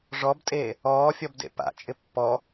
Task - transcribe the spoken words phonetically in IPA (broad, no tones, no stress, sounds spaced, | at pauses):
ʐ ɔ b tʼ eː | ɔː fʲ ɔ b d ḛ p a̰ t͡ʃʼ ɪ pː ɔ